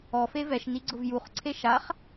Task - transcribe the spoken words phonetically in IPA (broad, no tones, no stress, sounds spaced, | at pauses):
ɔ f e v ɛ ʃ n i ɡ͡ǀ ʊ v j u χ ǀʰ e ʃ a χ